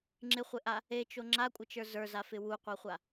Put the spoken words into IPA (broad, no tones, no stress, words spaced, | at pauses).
ŋ͡ǁɪχʷɪʔa | et͡ʃo ŋ͡ǁakʷʼɪt͡ʃə˞ zə˞zafɪ wuqʷaχʷa